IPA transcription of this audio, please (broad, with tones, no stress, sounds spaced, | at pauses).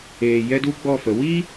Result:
eː˨ j ɛ˦ d u˦ ɡ͡b ɔ˦˨ f ə˨˦ w i˦